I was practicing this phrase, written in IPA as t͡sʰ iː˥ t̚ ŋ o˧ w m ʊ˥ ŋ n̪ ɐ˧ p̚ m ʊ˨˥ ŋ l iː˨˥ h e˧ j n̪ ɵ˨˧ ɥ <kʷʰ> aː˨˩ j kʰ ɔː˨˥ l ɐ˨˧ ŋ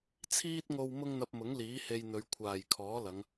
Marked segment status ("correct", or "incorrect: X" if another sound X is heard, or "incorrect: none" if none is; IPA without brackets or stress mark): correct